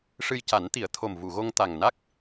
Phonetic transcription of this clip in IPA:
ʂɨ˧jca˨˩˦nt̪i˨˩˦ə̯t̪ʰo˨˩m vu˨˩˨ɣo˧ŋ t̪a˨˩ŋna˦˥k̚

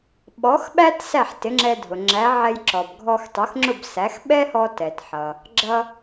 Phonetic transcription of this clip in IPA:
ɓɔ˩˥xɓæ˥t sæ˥˩ħtɪ˩˥ŋ͡ǁɛ˧ dʱʊ˩ ŋ͡ǁæ˩˥ʕɛ˧j ǁɔ˩b ɡʱɔ˧xtˤʊ˩˥xŋ͡ǁʊ˥˩bsæ˩˥x ɓɛ˥hɔ˧ tɛ˩tħʌ˩ | ɡ͡ǁʌ˧

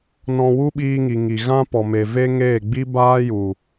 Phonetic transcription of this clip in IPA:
nɔ̃˧ wu˦ɓiː˧ŋi˨ ŋi˨ ɣã˦pɔ˨me˨ve˦ ŋeː˦˨ɡ͡bi˦baː˦ju˨

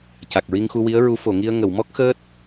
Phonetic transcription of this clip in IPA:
ca˨˩k̚ɹi˧ŋxu˧ wi˧˥ə̯ɹu˧˥ fo˨˩˨ŋi˧ə̯ ŋə˨˩˨wmɔ˦˥k̚ xəː˦˥t̚

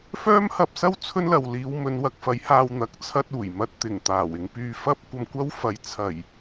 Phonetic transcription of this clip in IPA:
fœː˥mhɐ˧p̚sɐ˥w t͡sʰɵ˥nlɐ˨w liː˨˧wmɵ˨˧nwɐ˧k̚fɐ˨˥j haː˧w n̪ɐ˨˥k̚t͡sʰɐ˧t̚ uː˨˩jmɐ˧t̚ t̪ɪ˨˩ŋ t̪aː˨˩wɪ˧ŋ pyː˧fɐ˥p̚kʷɐ˧mkʷɐ˥w fɐ˨˧jt͡sʰɐ˨˩j

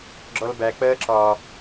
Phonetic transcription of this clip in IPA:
ɡ͡ǁɔlbæ k͡pɜːǁɒ

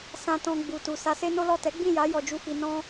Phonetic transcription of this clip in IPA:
sã˧ tɔ̃˧ ɡ͡bu˨tu˨ sa˧se˦no˦lɔ˦˨ tɛ˨˦ɡ͡bĩ˦˨ ja˨˦ jɔ˧d͡ʒu˦fi˧ nɔ̃˦

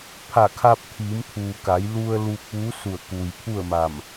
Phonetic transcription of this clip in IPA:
pʰa˧˩kʰa˧p̚ t̪ʰiː˩˧mt̪ʰuː˩ ka˩˧jlu˧ə̯ luː˧k̚ʋuː˧˥su˧˩ə̯ ku˩jpʰu˥˨ə̯ma˧˩m

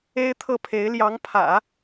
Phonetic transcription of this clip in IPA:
e˥ɪ̯t̪ʰɤ˥˩pʰe˧˥ɪ̯ ljɑ˧˥ŋpʰä̰˨˩˦

